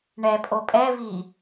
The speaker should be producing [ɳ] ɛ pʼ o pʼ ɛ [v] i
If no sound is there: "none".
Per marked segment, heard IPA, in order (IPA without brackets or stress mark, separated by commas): ɳ, v